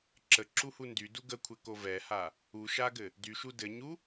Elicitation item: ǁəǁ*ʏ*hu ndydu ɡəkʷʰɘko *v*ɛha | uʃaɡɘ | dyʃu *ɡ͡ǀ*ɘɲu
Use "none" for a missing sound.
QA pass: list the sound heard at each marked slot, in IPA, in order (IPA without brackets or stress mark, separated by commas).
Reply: u, v, d